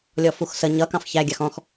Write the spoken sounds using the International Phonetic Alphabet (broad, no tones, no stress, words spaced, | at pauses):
lʲɔfuxsə ɲʌ kɑ̃fçæ ɡʲɑxɔ̃x